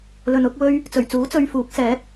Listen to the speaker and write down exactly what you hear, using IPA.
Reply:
l ɵ˨ n ʊ˨˥ k̚ w ɵ˥ ɥ | t͡s ɵ˨˩ ɥ t͡s uː˨˥ t͡s ɵ˧ ɥ f uː˨˥ k̚ s ɛː˨˥ t̚

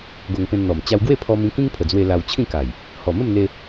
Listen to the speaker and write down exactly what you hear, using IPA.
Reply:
ɡ o˧ ŋ p ẽ˧ n n̪ ɔ˨˩ m t͡ɕ a˧ w ɡ w e˥˧ pʰ ɔ˧ m ĩ˧ k ĩ˦ ŋ pʰ ə˨˩ d͡z w e˧ l a˧ w t͡ɕʰ ĩ˥˧ k a˨˩ j | h ɔ˨˩ m ə˥˧ m n̪ e˧

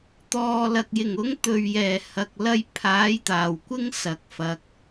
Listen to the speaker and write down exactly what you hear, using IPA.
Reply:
t̪ ɔː˨ l ɐ˨ k̚ j ɪ˨˩ ŋ ʊ˨˥ ŋ t̪ ɵ˨ ɥ j ɛː˨˩ h ɐ˧ k̚ l ɐ˥ j pʰ aː˨˥ j t̪ aː˨˩ w kʷ ɪ˥ ŋ s ɐ˨ k̚ f ɐ˨˥ k̚

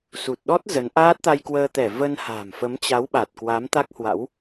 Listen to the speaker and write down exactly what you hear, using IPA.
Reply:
s u˨˩ t̚ ɗ ɔ˦˥ t̚ z ə˨˦ n ʔ aː˦˥ t̚ t̪ a˧ j k w əː˧ t̪ ɛ˧˩ v ə˧ n h a̤ː˨˩ m f ə˨˦ m t͡ɕ a˨˦ w ɓ a˨˩ t̚ k w a˨˦ m t̪ a˦˥ k̚ h w a̰˧˥ w

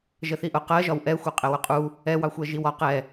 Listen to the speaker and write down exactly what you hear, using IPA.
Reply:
ʒ ə θ i ʔ ʊ q ɜ ʒ ɒ w ʔ ɛ xʷ ɜ qʼ ɛ w ʊ qʼ u | ɛ w ɑ xʷ ɜ ʒ i w ɒ q ɛ

